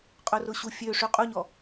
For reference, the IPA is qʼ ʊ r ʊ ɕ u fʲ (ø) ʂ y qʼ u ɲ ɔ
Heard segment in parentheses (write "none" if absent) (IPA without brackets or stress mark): ø